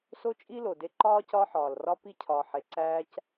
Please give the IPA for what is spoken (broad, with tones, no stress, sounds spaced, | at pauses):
s o˦ t͡ʃʼ i˦ l o˨ d e˧ ǃ ɒː˦ c ɒː˦ ħ ɒː˨ l r ɒ˦ p i˦ cʰ ɒ˨ ħ e˨ ǀ æː˧ c